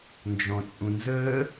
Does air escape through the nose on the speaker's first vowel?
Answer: yes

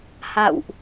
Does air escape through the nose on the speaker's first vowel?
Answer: no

